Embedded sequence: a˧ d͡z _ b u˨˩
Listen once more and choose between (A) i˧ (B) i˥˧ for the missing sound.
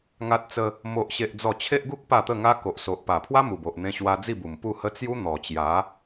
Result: B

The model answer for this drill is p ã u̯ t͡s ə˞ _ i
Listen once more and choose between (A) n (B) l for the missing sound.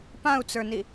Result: A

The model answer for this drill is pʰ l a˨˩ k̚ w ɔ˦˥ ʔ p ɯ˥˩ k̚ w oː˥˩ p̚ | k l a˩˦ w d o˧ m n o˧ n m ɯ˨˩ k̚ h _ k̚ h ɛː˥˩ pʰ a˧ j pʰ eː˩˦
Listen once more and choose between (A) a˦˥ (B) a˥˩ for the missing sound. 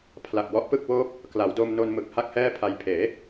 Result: B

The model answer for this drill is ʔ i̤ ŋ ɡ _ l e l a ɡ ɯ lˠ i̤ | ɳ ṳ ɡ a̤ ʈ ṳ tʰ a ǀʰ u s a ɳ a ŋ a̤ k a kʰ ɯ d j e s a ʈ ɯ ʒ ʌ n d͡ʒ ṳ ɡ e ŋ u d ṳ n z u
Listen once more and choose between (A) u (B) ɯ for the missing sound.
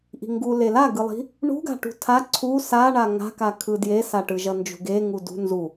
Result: A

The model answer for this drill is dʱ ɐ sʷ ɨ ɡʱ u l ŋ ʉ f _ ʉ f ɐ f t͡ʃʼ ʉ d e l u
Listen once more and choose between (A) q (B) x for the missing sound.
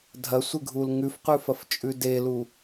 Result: A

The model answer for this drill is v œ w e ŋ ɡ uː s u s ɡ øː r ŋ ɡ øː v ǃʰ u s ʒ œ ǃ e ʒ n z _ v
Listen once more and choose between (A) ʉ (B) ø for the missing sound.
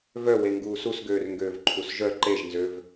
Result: B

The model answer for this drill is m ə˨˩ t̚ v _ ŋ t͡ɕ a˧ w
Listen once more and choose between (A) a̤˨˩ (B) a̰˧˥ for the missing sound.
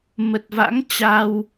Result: B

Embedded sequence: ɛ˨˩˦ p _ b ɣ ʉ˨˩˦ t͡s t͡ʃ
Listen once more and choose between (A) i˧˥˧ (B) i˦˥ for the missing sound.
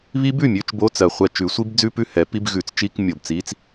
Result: A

